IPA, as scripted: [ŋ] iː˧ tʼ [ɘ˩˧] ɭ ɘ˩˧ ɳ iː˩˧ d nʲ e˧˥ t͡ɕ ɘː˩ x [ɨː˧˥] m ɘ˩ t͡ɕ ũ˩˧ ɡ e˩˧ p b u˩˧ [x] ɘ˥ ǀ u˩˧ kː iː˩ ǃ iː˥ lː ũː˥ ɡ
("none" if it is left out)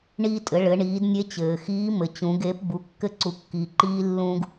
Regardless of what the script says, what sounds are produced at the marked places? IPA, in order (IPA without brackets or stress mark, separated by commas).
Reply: ɳ, ɘ˩˧, iː˧˥, kː